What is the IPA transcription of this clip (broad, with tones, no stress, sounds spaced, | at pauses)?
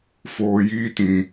f oː˨ j iː˦ t ĩ˨